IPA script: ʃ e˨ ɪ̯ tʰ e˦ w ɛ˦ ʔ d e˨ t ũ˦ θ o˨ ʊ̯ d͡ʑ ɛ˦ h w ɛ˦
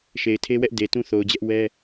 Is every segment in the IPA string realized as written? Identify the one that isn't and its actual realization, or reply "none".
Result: h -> ʔ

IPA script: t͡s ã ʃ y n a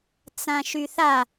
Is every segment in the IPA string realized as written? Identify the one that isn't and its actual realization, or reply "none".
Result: n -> θ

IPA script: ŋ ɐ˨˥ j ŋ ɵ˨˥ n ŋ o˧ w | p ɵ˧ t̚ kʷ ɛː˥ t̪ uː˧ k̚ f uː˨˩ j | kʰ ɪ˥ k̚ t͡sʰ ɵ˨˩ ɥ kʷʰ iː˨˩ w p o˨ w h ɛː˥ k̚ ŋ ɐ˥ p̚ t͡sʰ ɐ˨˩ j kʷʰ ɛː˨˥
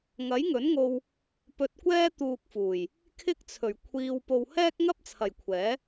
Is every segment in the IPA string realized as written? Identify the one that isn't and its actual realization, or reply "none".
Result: iː˨˩ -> iː˧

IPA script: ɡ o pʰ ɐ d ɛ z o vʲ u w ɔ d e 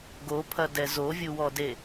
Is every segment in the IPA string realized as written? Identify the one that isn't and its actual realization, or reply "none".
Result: none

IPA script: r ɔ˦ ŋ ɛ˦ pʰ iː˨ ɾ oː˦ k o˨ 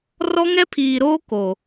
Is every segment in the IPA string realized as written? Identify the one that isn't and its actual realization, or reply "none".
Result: none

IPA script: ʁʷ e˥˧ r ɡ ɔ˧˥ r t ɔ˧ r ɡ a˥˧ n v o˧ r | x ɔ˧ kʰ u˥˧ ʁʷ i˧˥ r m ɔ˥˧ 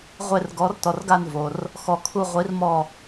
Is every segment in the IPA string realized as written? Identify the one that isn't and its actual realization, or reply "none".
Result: none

